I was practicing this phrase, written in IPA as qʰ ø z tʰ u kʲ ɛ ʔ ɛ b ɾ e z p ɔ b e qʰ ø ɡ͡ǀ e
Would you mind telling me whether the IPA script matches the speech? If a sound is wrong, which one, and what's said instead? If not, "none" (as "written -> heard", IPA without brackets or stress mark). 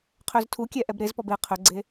none